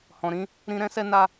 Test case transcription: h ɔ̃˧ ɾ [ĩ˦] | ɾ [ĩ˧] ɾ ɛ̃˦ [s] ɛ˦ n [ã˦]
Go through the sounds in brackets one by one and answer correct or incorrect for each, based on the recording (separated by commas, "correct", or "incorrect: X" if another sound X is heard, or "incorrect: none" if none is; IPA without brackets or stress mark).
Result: correct, correct, correct, incorrect: a˦